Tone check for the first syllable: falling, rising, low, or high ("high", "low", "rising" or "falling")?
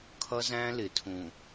high